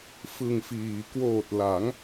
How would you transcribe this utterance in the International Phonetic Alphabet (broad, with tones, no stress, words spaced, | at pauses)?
fɯ˨˩ŋfiː˩˦ kwoː˨˩t̚la˩˦ŋ